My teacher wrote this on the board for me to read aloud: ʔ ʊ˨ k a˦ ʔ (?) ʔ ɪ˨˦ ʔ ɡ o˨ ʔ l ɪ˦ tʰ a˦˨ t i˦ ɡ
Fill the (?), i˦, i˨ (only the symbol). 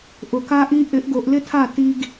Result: i˦